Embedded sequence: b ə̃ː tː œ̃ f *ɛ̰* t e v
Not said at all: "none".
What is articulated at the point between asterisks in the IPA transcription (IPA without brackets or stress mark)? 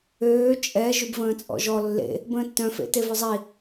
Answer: ḛ